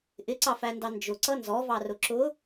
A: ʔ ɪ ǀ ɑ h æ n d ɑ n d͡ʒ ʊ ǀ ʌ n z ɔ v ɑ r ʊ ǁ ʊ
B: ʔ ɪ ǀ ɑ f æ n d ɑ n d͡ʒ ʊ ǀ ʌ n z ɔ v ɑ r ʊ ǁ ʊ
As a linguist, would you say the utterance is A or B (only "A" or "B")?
B